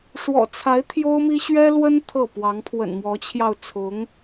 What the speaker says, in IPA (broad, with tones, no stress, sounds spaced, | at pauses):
ʂ w ɔ̰˨˩ t͡sʰ a˧˥ ɪ̯ t̪ʰ j o˥ ʊ̯ m i˥ ɕ ɥ ɛ˥ l w ə˥ n t̪ʰ ɤ˥˩ p w ɑ˧˥ ŋ pʰ w ə̰˨˩ n m w ɔ˧˥ t͡ɕʰ j ɑ˧ ʊ̯ t͡sʰ ʊ˧˥ ŋ